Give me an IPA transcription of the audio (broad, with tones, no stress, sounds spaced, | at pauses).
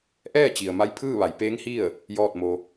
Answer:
ʔ ɛː˥˨ t͡ɕ i˩ ə̯ m a˧˥ j pʰ ɯː˥˨ ʋ a˩˧ j p eː˧˥ ŋ h i˥˨ ə̯ | j ɔː˥˨ t̚ m o˧